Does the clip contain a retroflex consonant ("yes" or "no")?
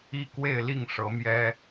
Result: yes